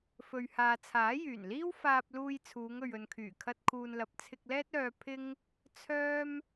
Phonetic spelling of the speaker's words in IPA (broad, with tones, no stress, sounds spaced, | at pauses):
f ɵ˨ ɥ h aː˨ t͡sʰ aː˨˥ j yː˨˩ n l iː˥ w f aː˧ p̚ l uː˧ j t͡sʰ uː˨˧ ŋ ɵ˨ ɥ ɵ˨ n kʰ yː˨˩ kʰ ɐ˧ t̚ kʰ uː˨ n l ɐ˨ p̚ t͡sʰ ɪ˧ k̚ l ɛː˥ t̚ œː˧ pʰ ɪ˥ ŋ | t͡sʰ œː˥ m